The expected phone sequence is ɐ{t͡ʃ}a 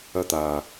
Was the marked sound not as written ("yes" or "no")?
yes